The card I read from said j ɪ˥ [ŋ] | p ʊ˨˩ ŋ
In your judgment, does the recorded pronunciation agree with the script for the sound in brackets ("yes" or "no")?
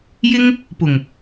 yes